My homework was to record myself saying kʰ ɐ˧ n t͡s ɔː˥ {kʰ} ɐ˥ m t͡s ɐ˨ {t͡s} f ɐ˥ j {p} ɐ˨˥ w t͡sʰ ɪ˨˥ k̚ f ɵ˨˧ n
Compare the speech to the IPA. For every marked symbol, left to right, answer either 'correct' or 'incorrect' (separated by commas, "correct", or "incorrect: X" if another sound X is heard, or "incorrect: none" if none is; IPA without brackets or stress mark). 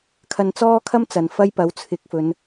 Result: correct, incorrect: n, correct